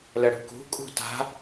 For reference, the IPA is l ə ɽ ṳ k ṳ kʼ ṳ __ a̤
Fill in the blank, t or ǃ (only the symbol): t